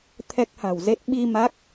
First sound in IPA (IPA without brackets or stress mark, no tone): t̪ʰ